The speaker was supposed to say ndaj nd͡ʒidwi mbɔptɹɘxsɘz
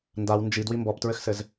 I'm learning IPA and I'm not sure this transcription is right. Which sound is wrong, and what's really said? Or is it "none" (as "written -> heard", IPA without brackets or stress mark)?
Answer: j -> w